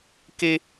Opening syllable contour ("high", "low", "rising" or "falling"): high